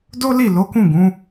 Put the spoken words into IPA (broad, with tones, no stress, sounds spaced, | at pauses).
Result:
d o˦ l i˦˨ l o˨˦ k ũ˦˨ ɡ ũ˨˦